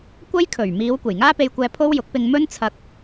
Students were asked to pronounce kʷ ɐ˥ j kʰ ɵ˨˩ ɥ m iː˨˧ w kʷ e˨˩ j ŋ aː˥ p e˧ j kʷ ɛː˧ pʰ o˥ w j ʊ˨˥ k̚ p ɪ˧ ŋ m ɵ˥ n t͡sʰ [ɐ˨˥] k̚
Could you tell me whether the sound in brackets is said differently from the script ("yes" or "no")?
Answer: yes